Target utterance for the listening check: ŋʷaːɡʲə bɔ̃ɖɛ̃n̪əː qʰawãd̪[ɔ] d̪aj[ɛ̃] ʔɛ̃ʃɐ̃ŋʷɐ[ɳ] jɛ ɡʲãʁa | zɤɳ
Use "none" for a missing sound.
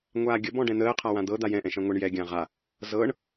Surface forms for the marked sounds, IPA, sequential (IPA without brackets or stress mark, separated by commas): ɤ, ɛ̃, ɳ